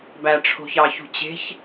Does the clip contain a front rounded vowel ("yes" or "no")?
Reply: no